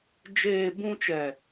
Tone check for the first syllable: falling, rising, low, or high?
low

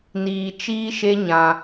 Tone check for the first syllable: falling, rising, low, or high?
low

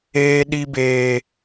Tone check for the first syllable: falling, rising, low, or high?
high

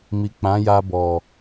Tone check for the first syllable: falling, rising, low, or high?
low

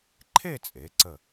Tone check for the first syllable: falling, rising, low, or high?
falling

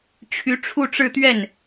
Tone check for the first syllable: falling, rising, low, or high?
rising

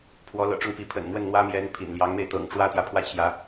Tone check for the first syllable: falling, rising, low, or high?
rising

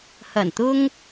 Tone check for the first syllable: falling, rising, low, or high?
low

